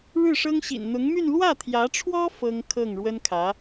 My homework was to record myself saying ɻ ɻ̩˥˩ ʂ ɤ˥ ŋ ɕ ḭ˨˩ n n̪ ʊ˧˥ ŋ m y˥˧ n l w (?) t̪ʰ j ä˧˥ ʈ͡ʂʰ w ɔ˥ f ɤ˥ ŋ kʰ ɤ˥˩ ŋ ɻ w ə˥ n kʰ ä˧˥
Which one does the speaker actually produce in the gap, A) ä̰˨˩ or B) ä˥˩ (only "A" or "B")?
B